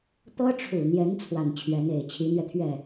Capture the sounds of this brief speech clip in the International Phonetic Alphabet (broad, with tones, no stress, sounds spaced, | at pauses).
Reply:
t̪ ɤ˥ ʈ͡ʂʰ u˨˩ n̪ j ɛ˧˥ n t͡sʰ w a˨˩ n t͡ɕʰ ɥ ɛ˧˥ n e˨˩ ɪ̯ t͡ɕʰ i˧˥ n̪ ɥ ɛ˧ t̪ʰ ɥ ɛ˥˩